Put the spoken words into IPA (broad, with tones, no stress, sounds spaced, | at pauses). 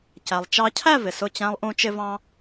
c æ˩ lˠ t͡ʃ ɑ˧ cʰ æ˥˧ v ɪ˩ s ʊ˧˩ t͡ɕ æ̃˧ lˠ ʔ ũ˧ t͡ʃ ɪ˧ v ɑ̃˧